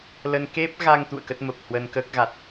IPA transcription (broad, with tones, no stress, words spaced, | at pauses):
lə˧n ke˦˥p̚ɣa˧ŋ t̪ṵ˧˨ə̯kə˦˥t̚mə˨˩p̚hwə˧n kəː˦˥k̚ɣa˨˩t̚